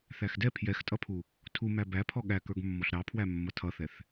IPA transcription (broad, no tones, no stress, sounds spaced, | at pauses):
θ æ x d ɛ pʰ j ɛ x tʼ ʌ pʰ u | tʰ u m æ b æ pʰ ɔ ɠ æ k ə˞ ɡ mː ɔ ɬ ɾ ɑ pʰ w æ mː ʌ tʰ ʌ θ ɛ θ